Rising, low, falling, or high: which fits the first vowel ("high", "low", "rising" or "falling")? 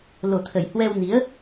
low